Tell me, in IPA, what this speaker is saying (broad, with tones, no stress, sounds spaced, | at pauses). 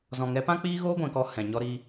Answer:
z ɔ̃˨ ŋ ɛ˨˦ p ã˦ k͡p iː˦ ɣ oː˦ ɡʷ ɛ̃˨ k ɔ˧ h ɛ̃˨ ɲ ɔ˧ ɾ i˧